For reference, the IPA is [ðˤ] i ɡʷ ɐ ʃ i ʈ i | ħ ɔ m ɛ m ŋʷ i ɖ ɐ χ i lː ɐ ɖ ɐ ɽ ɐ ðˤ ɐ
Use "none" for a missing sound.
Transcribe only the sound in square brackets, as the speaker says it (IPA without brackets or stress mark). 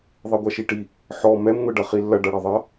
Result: ðˤ